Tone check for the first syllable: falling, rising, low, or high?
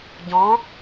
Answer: rising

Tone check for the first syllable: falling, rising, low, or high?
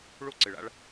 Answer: high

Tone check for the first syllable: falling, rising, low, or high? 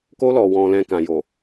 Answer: high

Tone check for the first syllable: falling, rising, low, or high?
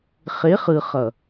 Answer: rising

